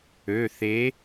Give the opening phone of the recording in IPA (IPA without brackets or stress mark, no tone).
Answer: ø